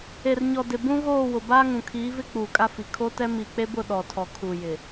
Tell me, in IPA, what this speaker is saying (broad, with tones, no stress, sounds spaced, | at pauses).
e˨ r ɲ ɔ˨ d ɪ˨ b ũ˦ ɣ oː˦˨ w ʊ˨ b aː˦ ŋ ũ˨ kʰ iː˨˦ v ɪ˦ k͡p uː˨ kʼ a˦ f i˨ kʰ o˦ t ɛ˦ m i˨ k͡p e˦ b ʊ˦˨ ɗ ɔ˨ tʰ ɔ˨ kʰ u˨ j ɪ˨